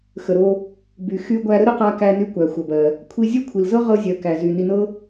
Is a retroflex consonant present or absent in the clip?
absent